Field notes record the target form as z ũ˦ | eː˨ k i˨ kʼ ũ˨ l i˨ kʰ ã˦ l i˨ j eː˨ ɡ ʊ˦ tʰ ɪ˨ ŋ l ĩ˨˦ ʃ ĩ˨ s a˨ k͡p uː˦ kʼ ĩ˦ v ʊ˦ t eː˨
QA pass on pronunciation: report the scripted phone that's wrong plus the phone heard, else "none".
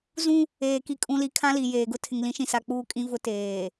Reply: none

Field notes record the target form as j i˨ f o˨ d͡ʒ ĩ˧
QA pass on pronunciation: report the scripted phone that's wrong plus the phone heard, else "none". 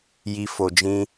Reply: none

